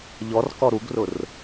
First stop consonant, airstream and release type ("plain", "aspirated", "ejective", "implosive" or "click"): plain